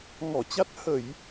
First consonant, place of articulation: velar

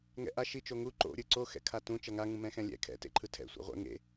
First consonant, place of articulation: velar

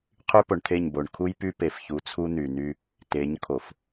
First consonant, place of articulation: uvular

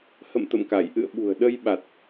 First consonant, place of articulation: glottal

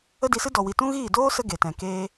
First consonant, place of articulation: alveolar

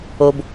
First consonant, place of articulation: labial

